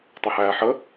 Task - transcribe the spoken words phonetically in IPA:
tˤ ə h æː ħ ə

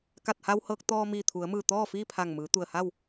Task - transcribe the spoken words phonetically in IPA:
k a˧˩ t̚ h a˧ w h ɤː˧ k̚ t̪ ɔː˧ m iː˧˩ t̪ʰ u˩˧ ə̯ m ɯː˧˩ t̪ ɔː˥˨ f iː˥˨ pʰ a˧˩ ŋ m ɯː˩˧ t̪ u˧˩ ə̯ h a˥˨ w

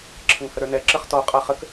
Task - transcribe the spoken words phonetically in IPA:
ǁʰ ə ŋ h ə ɾ ə˞ n ɛ ǁ ə χ t ɔ qʼ a χ ə k

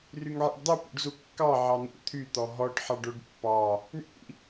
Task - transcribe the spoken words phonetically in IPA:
r y ŋ ʕ ḭ ɖ dˤ u p ṵ ɖ z u kː ɑ ʕ ɑ n̪ ṵ t̪ʰ y t̪ ɔ ɦ ɔ ɖ ħ ɑ ɖ o ɖ pː ɑ | ɳ ḭ

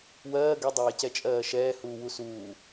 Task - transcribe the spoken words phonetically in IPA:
w ɜː ɡ ɛ dˤ ɛː c ɛ t͡ʃʼ ɜː ʃ ɛː h uː w u s uː

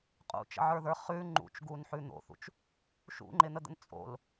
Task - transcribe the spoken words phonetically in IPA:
qʼ ṵ t͡ʃ ə̰ ʕ ə˞ ð ə˞ χ ʉ ŋ͡ǃ ṵ t͡ʃ ɡ u n ħ ʉ n̪ o̰ θ ṵ t͡ʃ | ʃ ṵ ŋ͡ǃ ɪ n̪ ə d̪ ə̰ n t͡sʼ o̰ l

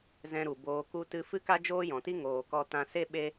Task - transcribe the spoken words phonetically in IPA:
z ɛ̃˧ ɾ u˨ b oː˨ k u˧ t ɨ˧ f ɨ˦ k a˦ d͡ʒ oː˦ j ɔ̃˨ t i˦ ŋ oː˨ k ɔ˧ t ã˧ s e˦ ɓ e˦

